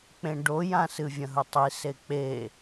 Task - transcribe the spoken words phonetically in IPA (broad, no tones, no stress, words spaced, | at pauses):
k͡pẽɖojã sɨvʲɐ̃ɦɵtˤi sek͡pe